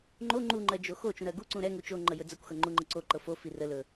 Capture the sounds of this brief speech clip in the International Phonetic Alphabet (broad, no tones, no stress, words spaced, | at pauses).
ŋ͡ǃo ŋ͡ǃuŋ͡ǃɜ d͡ʒoxo t͡ʃũɾɜɡu ǀũɾɛ ŋut͡ʃoŋ͡ǃə jɵd͡zəkʷxɤ ŋ͡ǃuŋ͡ǃəǀoǃɤ fofi rəlɵ